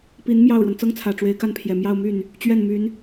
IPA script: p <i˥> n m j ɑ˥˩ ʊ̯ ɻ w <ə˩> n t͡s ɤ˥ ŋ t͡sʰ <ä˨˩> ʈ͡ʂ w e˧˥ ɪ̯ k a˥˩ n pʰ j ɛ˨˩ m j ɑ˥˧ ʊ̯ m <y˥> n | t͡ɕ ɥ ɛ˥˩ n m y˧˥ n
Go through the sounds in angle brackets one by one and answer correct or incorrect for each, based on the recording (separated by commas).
incorrect, correct, correct, incorrect